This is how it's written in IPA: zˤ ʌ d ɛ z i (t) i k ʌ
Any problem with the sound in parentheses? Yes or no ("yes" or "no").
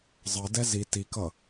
no